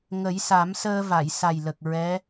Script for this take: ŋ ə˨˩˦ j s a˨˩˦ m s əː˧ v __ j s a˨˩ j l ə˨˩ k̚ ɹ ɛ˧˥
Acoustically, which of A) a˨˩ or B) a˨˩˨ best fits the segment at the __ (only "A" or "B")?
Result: B